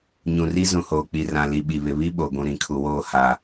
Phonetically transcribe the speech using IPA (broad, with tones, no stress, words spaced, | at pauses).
ɲũ˨ri˦ zũ˨hoː˨k͡pi˨rã˨ li˨ɓi˨βɪ˨ βi˦ɓo˨ɡʷũ˨ ɾĩ˨kʰu˨woː˦˨ ha˨